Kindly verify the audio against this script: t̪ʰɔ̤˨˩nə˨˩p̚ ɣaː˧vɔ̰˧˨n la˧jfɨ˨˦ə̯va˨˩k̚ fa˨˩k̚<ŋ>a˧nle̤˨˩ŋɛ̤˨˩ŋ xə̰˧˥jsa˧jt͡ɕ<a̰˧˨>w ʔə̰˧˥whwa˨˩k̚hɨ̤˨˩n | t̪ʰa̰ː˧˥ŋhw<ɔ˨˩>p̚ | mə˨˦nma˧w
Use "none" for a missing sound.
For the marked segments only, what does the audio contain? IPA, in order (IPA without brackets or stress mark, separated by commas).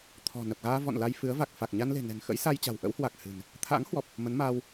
ɲ, a̤˨˩, ɔ˨˩